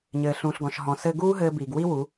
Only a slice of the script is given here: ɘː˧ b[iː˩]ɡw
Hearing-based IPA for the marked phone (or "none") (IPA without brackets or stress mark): iː˩